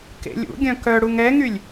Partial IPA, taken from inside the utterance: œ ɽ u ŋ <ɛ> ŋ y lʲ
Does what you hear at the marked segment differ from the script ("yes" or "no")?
no